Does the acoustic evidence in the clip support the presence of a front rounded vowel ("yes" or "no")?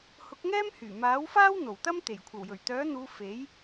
yes